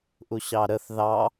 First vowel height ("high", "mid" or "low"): high